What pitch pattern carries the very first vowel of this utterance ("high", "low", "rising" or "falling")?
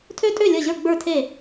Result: high